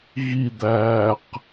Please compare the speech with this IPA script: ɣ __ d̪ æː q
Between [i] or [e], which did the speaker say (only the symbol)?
i